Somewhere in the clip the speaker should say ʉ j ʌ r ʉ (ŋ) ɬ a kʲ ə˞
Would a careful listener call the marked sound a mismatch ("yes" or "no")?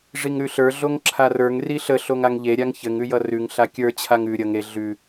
no